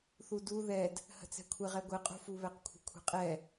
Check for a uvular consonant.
present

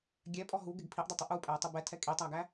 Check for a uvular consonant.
absent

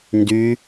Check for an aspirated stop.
absent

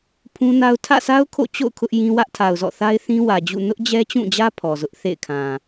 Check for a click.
absent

